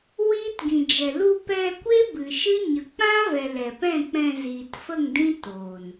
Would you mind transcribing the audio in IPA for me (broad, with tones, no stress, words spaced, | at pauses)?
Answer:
wiː˦tɡĩ˨d͡ʒɛ˨ lu˧ pɛ˧kʷe˦ bɨ˨ʃɨ˦ ɲə˨ k͡pã˦vɛ˨ lɛ˨pɛ̃˦˨k͡pɛ̃˧ ziː˨tfə˦˨ŋdĩ˦ toː˨n